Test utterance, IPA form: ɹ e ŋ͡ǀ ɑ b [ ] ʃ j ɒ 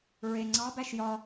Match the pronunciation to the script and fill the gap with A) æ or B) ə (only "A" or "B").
A